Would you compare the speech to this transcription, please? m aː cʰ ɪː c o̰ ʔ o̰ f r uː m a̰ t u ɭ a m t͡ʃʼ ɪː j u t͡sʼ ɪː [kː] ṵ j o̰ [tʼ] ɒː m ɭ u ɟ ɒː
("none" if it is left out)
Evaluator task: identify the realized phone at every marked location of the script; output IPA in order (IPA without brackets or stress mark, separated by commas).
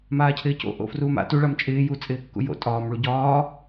kː, tʼ